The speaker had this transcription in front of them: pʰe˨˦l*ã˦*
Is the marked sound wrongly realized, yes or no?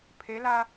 yes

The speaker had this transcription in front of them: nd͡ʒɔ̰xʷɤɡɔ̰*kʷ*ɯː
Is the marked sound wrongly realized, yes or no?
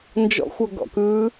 yes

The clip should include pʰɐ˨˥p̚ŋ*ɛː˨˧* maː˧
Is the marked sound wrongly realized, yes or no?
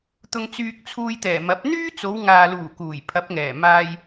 yes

